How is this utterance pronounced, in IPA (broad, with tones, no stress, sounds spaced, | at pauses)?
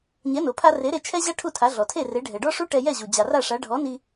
ɲ ɛ˩˥ n o˩ pʰ a˧ r e˩˥ ɾ e˧ t͡ʃʰ ɛ˥ ʑ a˥ ʈʰ u˥˩ tʰ a˩˥ ɮ ɔ˩ tʰ e˥˩ r e˩˥ ɖʱ ɛ˩ ɖ ɔ˥ ʂ u˥ ʈ ɛ˧ j ɛ˥˩ ʑ u˩ d͡ʑ a˩ r a˥˩ ʂ a˩˥ ɖʱ ɔ˩˥ n i˧